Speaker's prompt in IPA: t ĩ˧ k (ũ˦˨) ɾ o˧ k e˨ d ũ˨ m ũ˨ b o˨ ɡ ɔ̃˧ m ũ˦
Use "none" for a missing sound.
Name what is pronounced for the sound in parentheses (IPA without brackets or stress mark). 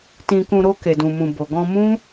ũ˧